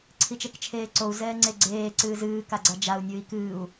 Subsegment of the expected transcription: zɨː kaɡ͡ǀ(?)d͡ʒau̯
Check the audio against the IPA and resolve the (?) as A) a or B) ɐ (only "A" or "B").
A